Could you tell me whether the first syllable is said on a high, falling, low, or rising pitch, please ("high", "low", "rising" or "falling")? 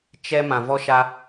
high